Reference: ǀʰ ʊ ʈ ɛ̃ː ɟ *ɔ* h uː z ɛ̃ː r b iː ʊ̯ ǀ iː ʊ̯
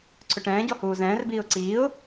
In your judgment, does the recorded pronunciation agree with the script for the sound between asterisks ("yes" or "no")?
yes